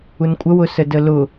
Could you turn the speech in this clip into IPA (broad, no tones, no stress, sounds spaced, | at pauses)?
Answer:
u n kʷʼ ə w ʊ s ə d ə l ʊ